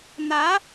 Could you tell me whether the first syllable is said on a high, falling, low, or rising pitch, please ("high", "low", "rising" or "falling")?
rising